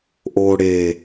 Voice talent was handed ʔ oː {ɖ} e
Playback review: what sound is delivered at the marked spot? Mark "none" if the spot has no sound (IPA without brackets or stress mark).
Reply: ɽ